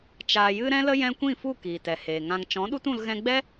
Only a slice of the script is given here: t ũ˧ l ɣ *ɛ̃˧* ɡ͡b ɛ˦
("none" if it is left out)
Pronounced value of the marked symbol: ɛ̃˧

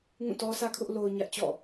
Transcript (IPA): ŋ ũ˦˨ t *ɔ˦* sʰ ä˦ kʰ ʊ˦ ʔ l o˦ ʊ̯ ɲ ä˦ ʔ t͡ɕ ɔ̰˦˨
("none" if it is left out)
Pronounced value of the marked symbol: ɔ˦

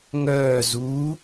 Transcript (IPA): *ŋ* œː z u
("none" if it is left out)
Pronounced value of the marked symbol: ŋ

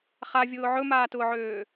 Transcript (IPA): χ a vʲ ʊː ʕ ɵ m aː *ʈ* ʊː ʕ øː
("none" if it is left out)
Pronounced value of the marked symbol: t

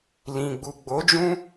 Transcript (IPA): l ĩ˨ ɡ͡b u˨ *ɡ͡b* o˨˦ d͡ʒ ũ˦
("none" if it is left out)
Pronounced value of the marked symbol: ɡ͡b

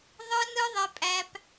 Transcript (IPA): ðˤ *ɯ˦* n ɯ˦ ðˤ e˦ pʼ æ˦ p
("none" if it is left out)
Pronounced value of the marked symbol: ɯ˦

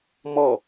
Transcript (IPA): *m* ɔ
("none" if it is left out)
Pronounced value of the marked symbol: m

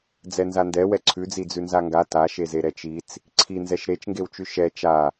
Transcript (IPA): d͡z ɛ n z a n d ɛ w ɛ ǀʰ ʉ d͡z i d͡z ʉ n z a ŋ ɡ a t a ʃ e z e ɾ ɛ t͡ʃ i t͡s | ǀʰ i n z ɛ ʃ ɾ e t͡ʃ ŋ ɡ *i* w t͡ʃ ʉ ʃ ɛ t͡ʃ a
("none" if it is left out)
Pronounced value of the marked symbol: e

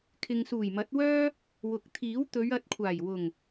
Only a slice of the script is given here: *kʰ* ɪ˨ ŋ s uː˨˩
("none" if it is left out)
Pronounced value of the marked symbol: kʰ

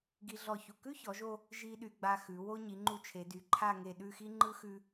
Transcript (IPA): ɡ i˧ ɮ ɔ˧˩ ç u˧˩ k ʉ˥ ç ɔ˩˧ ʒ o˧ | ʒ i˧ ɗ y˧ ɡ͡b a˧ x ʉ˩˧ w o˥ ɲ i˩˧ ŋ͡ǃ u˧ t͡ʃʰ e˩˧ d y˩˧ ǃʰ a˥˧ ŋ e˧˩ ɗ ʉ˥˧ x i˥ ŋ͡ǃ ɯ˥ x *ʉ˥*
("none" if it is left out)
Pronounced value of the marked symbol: ʉ˥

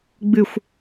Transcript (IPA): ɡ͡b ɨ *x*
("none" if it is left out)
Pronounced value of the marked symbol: xʷ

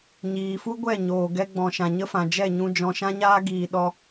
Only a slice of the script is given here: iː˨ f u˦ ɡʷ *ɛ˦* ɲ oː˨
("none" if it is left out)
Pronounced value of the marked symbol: ɛ˦˨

